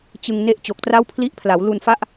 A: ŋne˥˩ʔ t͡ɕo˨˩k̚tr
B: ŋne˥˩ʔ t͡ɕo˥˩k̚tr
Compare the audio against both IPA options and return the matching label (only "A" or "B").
A